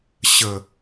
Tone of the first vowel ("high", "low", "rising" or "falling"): low